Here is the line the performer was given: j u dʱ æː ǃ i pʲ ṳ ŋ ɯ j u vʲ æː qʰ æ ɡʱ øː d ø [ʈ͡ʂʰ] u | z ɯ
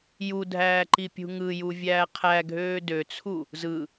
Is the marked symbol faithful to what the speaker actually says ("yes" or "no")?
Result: no